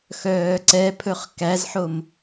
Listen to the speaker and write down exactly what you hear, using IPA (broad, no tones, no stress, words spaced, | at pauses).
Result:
xœːǀɛpʰɵχ kæzħom